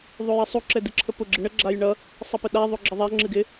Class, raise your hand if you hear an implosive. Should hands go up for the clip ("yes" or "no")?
yes